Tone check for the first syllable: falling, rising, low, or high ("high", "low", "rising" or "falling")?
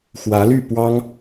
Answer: rising